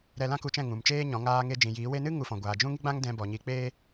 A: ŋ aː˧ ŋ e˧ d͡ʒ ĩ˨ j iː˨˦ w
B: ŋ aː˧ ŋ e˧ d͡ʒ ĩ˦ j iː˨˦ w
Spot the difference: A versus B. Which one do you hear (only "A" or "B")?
A